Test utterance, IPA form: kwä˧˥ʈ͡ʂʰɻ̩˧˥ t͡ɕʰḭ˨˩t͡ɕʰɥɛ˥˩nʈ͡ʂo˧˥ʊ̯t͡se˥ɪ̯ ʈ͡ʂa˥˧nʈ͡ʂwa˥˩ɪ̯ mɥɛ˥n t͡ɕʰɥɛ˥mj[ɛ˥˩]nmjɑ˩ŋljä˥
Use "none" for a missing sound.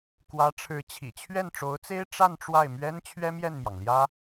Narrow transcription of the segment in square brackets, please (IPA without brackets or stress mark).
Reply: ɛ˥˩